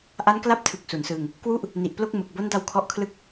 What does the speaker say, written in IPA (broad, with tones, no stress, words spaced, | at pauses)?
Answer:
ʔa˦˥nkla˦˥p̚tʰɯ˨˩k̚ su˩˦nsɯː˧ŋ | kwu˥˩ʔ | ni˨˩ʔplo˥˩k̚ mɯ˨˩k̚bo˦˥nda˧w kʰɔ˦˥ʔkʰlɯ˥˩k̚